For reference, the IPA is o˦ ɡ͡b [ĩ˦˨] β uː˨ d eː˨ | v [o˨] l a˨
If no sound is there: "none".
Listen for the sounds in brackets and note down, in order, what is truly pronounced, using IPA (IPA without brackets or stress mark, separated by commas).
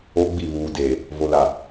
i˦˨, o˨